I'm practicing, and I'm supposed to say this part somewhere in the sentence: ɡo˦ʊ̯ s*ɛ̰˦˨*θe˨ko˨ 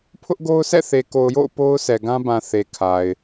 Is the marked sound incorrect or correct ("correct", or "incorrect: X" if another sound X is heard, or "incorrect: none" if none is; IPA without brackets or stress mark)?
correct